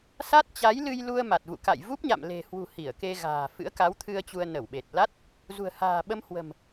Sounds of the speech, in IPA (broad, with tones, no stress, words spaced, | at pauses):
sa˦˥t̚t͡ɕa˨˦jlɨ˧jlu˧ə̯ ma˨˩t̚vṵ˧˨ka̰˧˨j vu˦˥p̚ɲa̰˧˨mle̤˨˩hwṳ˨˩ hi˧˩ə̯ke˧ɣa̤ː˨˩ fɨ̰˧˥ə̯ka˨˦wt̪ʰɨ˧ə̯ t͡ɕu˧ə̯nə˧˩wɓe˨˩t̚ la˦˥t̚ | zṳ˨˩ə̯ha̤ː˨˩ɓə˧m hwə̤˨˩m